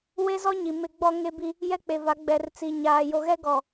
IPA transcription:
we˦zɔ˦ɲi˨ mɪ˦ɡ͡bɔ˦ŋe˦ bi˦ | jɛ˦k͡pe˨va˨˦ ɡ͡bɛ˨rt͡si˨ ɲaː˨jo˨ɣɛ˦ ɡɔ˨

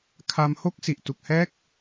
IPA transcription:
kʰa˧mho˦˥k̚ si˨˩ʔtu˨˩k̚hɛː˦˥k̚

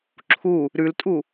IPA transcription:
ǁʰu | ɾʉltʼu

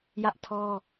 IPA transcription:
jä˦ʔtʰɔ˦

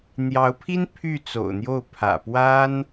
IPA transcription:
n̪jɑ˧˥ʊ̯pʰi˥n pʰy˥˩ t͡so̰˨˩ʊ̯n̪jo˥˩ʊ̯ pʰä̰˨˩pwa˥n

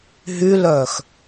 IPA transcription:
ɦylœːx

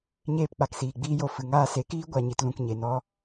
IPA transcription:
ɲeː˧pk͡pa˨ksiː˨ ɡ͡biː˧jo˨ fɨ˨ŋaː˦˨se˨˦ kiː˦ ɡʷa˧ɲi˧t lũ˨kɲe˨nɔ˧

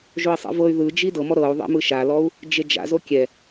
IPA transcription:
ʒoi̯sˤḭvɤy̯ ðɯd͡ʒi dɤmɔ ɾɤu̯ ðˤḛmɯʃalɔu̯ | d͡ʒed͡ʒa̰ zokʲɛ

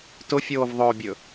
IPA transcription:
tʊfʲoːvðˤɵːbʲɵ

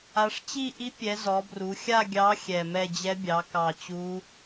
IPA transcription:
a˩˧ʂt͡ɕi˥˧ ʔi˧˥pʲɛ˩˧ zɔ˩˧bru˩˧xʲa˥˧ɡʲɑ˧˥ xʲɛ˨˩mɛ˥˧ d͡ʑɛ˧˥bʲɑ˩˧ kɑ˨˩t͡ɕu˧˥

